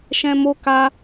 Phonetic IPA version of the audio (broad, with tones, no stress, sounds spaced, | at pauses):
ʃ ɛ̃˨ m o˧ k a˦